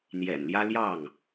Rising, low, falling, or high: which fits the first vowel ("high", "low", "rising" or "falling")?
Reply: low